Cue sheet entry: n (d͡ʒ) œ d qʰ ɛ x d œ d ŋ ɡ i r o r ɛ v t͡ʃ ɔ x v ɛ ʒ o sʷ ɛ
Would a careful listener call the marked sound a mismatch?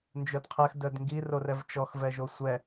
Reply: no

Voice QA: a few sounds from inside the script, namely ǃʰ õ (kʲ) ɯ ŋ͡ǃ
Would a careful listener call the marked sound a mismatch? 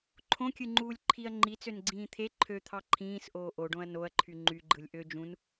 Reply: no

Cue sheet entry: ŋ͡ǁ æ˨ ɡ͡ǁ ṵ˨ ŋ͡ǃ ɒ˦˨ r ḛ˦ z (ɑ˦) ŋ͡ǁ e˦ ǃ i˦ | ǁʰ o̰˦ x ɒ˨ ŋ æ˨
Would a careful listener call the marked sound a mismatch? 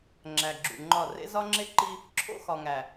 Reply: yes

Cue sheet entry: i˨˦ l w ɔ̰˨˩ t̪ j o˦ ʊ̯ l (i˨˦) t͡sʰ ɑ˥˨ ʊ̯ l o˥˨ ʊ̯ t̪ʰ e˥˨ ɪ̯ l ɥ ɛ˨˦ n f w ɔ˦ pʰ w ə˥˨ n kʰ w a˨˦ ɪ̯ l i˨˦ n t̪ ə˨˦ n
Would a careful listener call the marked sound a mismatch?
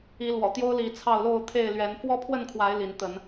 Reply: no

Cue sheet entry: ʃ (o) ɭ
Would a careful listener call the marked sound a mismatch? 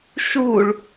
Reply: yes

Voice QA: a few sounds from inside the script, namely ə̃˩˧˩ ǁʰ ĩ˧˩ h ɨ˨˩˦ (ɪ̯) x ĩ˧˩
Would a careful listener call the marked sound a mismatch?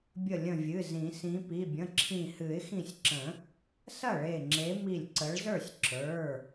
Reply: no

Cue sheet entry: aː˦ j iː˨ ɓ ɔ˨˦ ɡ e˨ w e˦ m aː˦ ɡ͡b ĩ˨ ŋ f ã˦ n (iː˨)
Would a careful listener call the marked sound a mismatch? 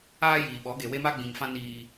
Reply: yes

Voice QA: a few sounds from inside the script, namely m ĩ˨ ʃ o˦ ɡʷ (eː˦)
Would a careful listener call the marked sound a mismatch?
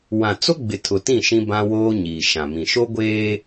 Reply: no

